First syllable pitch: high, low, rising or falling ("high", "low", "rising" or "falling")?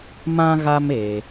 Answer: high